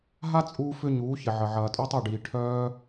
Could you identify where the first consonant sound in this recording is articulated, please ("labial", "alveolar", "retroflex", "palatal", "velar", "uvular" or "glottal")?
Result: glottal